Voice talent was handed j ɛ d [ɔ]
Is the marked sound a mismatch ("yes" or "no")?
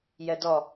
no